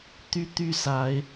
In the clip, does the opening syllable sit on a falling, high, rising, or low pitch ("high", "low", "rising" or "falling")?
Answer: high